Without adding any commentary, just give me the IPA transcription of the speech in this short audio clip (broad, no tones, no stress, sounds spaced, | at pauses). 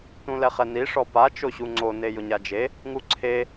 t ũ l ɛ χ ɛ n i ʂ ɔ p a t͡ʃ o ɕ u ŋ͡ǀ o n e j ʊ ɲ a d͡ʒ e | ŋ u ǀʰ e